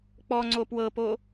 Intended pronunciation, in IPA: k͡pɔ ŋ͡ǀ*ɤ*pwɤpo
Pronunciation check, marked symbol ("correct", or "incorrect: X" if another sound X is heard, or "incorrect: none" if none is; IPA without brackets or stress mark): incorrect: o